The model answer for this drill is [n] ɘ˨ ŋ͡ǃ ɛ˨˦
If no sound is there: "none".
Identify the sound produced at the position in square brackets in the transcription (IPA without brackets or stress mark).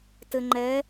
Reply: t